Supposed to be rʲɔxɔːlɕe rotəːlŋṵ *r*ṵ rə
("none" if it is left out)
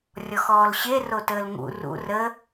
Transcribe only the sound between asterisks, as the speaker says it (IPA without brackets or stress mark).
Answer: r